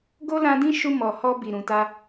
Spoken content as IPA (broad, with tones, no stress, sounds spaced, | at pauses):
ɡ o˦ l ã˧ d ĩ˦ ʃ u˧ m ɔ˨ h ɔ˧ b i˨ ɾ ũ˨ t a˧